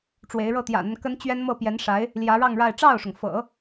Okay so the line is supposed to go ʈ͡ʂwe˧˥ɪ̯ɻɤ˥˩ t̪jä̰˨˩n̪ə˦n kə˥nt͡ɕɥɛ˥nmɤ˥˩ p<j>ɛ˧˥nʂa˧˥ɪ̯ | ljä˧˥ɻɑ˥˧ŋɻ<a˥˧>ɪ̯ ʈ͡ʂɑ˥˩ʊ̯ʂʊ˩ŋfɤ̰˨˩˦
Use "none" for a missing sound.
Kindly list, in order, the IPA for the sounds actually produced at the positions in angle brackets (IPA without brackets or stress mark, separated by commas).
j, a˥˧